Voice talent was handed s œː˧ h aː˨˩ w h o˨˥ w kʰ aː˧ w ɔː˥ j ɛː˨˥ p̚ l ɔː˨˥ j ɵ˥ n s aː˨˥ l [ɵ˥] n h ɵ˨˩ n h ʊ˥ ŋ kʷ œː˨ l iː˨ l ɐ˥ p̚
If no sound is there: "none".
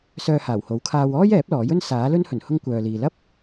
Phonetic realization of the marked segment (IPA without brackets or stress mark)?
ɵ˥